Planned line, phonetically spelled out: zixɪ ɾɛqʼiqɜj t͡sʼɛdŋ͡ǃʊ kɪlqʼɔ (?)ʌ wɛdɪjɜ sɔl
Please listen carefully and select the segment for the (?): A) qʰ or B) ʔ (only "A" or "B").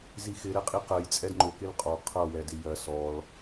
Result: A